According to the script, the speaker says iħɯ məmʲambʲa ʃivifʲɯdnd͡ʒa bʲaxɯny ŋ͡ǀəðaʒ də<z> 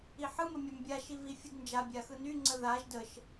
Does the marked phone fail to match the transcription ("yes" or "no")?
yes